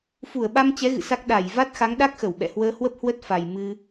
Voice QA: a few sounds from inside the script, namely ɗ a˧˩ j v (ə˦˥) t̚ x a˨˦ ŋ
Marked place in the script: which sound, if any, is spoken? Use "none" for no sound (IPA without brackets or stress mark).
a˦˥